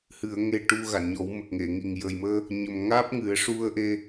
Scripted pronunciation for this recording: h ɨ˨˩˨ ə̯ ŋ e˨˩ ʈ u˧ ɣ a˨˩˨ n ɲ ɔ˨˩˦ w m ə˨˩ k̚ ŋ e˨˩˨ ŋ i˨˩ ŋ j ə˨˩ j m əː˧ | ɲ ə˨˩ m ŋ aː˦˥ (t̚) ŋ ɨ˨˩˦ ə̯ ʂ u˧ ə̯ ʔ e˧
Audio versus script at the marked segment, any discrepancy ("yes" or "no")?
yes